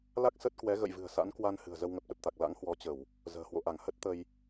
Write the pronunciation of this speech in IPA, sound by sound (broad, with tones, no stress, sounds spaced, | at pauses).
l a˦˥ k̚ s ə˦˥ t̚ k w ɛ˨˦ ɣ ə̰˧˨ j v ɨ̤˨˩ ə̯ s a̰˧˥ n k w a˧ n h ɨ̤˨˩ ə̯ z ə˧ w ŋ ə˨˩ p̚ ɗ ə˨˩ p̚ t̪ a˨˩ k̚ l a̰˧˥ ŋ h w ɔ˨˦ t͡ɕ ə˧˩˨ w | z ə̤ː˨˩ h w o̰˧˨ ʔ a˧˩ ŋ h ə˦˥ t̚ t̪ ə˧ j